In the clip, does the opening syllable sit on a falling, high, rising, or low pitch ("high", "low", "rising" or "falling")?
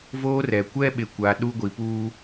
high